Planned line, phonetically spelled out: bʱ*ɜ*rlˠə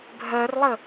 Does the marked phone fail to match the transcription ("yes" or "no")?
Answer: no